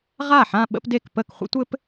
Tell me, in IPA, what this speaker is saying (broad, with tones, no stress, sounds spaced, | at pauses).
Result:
ʁ a˥˩ ħ ã˥˧ ɓ ə̰˥ p d e˥˩ k p ə˥˩ k χʷ ə̰˥ tʷ ɘ˥ p